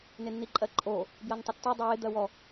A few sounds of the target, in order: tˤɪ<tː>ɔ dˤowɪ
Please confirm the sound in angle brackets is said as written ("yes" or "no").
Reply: yes